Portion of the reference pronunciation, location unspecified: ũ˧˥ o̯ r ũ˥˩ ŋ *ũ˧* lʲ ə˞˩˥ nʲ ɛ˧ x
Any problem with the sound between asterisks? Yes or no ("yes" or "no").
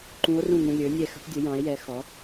no